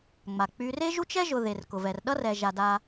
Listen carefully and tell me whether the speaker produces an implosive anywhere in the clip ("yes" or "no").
yes